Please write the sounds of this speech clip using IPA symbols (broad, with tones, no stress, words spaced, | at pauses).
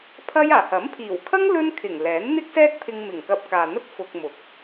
pʰɐ˥jaː˨˩ hɐ˨˥mpʰiː˨˩wkʰɐ˥ŋ lɵ˥n kʰɪ˨˩ŋ lɛː˨˥nn̪ɪ˥k̚sɛː˥k̚pʰɪ˧ŋ mɪ˨˩ŋkɐ˧p̚kaː˨n̪ɐ˥t̚ fʊ˧k̚mʊ˨˥k̚